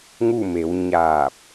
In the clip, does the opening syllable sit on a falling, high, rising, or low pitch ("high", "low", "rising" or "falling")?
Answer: falling